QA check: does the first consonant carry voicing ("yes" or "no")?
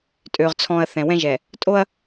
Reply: no